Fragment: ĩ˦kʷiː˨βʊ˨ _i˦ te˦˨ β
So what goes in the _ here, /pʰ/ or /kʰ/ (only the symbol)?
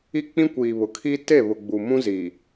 kʰ